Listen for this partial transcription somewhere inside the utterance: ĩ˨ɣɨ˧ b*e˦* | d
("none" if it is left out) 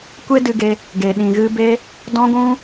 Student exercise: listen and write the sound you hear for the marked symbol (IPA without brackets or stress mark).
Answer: e˧